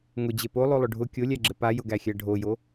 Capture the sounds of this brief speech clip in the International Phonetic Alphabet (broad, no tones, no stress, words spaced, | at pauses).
ŋʊd͡ʑe polˠolˠʊ ɖʱʊ kʲolʲæɡ͡ǁɘ pajʊɡæxʲæ ɖʱojo